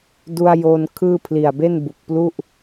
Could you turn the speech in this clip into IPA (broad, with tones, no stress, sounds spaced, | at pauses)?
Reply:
d u˧ a̯ j o˧ n kʰ ɯː˥˩ pʰ l i˨˩ a̯ b e˥˩ n b u˨˩ k̚ p l u˥˩ ʔ